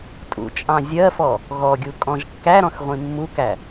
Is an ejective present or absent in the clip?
present